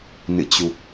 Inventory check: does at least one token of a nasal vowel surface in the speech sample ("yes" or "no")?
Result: no